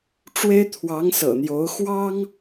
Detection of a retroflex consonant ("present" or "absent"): present